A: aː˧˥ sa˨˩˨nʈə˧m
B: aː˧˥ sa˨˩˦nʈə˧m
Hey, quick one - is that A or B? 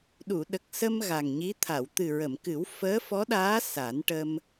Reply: B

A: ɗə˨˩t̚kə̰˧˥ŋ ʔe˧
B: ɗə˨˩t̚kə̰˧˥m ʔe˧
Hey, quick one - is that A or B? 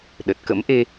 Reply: B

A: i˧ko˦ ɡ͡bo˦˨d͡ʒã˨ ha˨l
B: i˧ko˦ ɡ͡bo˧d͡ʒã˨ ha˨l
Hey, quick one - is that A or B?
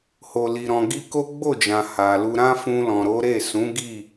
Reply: A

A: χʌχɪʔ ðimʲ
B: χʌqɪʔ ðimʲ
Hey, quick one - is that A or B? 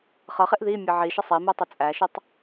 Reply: A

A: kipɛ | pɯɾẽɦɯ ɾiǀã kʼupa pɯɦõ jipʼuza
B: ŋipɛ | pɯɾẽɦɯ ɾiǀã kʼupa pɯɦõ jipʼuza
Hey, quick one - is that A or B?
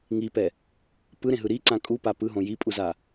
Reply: B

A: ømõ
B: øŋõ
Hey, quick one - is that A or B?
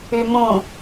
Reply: A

